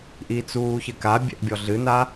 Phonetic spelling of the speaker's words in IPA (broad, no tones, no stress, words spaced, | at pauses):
ʔit͡suːçɘka bʲɛ̰ʔbʲɔɮɨna